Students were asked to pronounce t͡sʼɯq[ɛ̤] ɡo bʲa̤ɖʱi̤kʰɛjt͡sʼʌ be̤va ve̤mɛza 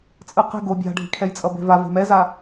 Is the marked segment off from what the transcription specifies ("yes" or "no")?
no